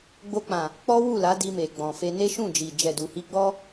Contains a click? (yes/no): no